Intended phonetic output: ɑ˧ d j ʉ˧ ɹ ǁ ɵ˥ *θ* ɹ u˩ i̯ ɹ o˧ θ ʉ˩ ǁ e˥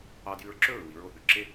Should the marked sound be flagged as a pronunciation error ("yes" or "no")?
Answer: yes